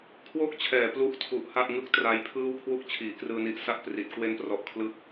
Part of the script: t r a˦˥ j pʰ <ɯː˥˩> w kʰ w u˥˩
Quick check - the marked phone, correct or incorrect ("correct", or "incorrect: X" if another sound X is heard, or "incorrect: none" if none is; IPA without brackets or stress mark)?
correct